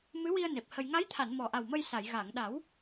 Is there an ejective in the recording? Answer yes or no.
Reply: no